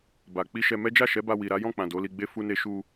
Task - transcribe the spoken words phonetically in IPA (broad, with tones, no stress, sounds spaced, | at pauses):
b a˨ k͡p i˧ ʃ ɛ˧ m ɛ˦ d͡ʒ a˦˨ ʃ ɛ˨˦ b a˧ w i˨ ɾ a˨˦ j ɔ̃˦˨ k͡p ã˨ d o˨˦ l i˧ ɡ͡b e˦ f u˦ n e˦ ʃ u˧